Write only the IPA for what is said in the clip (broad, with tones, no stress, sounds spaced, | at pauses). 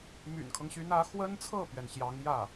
m y̰˨˩ n kʰ ɤ˦ ŋ ɕ y˧˥ n ä˧˥ x w ə˥ n t͡sʰ ɤ˥˩ p ɥ ɛ˩ n ɕ j ɑ˧˥ ŋ j ä˥˩